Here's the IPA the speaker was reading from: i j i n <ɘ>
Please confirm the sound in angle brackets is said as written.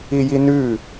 no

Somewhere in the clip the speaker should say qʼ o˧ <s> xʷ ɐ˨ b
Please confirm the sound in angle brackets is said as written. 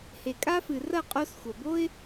yes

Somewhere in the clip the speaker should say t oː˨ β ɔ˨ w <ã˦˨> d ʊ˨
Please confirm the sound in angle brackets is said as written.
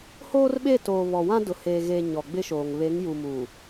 no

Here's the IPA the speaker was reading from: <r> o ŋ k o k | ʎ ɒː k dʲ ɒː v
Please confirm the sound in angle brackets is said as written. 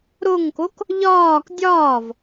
no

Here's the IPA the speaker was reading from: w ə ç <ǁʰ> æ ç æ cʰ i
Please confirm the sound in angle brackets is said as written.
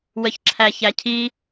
yes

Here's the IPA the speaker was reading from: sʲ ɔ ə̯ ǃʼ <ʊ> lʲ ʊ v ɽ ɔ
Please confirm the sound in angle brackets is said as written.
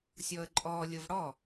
no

